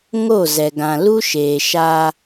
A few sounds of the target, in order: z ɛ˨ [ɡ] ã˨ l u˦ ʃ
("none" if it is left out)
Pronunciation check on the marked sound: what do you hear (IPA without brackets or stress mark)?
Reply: ɡ